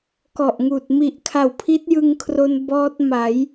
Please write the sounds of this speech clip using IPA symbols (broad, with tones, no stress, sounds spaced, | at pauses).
k ɔ˨˩ ʔ ŋ uː˨˩ t̚ m i˨˩ ʔ kʰ a˨˩ w pʰ i˦˥ t̚ j ɯ˧ ŋ kʰ r o˧ n b ɔː˦˥ t̚ m a˩˦ j